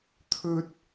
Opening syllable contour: high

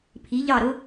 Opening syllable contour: rising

